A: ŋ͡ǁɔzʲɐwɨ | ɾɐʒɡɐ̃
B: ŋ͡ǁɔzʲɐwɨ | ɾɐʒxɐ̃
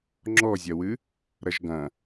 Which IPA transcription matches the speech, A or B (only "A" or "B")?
A